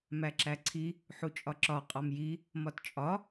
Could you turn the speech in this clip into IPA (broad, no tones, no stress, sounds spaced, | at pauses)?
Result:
m æ ǁ æ ǀʰ i | ħ u t͡ʃʼ ɒ ǁ ɒ qʼ ɒ m j i | m ɒ t t͡ʃʼ ɒ